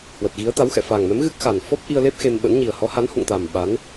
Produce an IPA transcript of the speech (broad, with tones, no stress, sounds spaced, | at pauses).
h w ə˨˩ t̚ ɣ i˨˦ ə̯ t̪ a˨˦ w x ɛ̰˧˨ f a˨˩ ŋ m ɛ˨˦ m ɣ ɨ˦˥ k̚ x a˨˩ n f ɔ˦˥ p̚ ʔ i˧ ə̯ l e˦˥ p̚ x e˧ m ɓ ə̰˧˥ n ɲ i˨˩ ə̯ h ɔ˨˦ h a˨˦ n h ṵ˧˨ ŋ t̪ a˨˩ m ɓ a˨˦ n